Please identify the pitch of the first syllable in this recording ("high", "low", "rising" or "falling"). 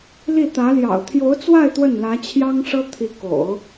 falling